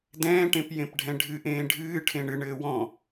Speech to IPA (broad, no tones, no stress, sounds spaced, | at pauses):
d ɛ̃ː ʈ ẽ p j ẽ p ɖʱ ɛ̃ ɖʱ ɨ ʔ ẽː ɖʱ ɨː ʈʰ ẽ ɳ ɨ ɳ ɘː w ɔ̃